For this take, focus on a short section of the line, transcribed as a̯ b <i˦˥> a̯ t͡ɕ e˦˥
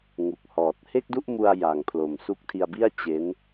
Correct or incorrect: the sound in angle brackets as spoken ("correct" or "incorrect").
incorrect